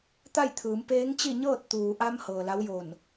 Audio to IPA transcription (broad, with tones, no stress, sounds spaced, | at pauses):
t̪ a˥˨ j t̪ʰ ɯː˩˧ m p eː˧˥ ŋ t͡ɕ i˥˨ ɲ ɤː˥˨ t̚ t̪ uː˩ ʔ a˧ m h ɤː˩ l a˧˥ w j o˧˩ n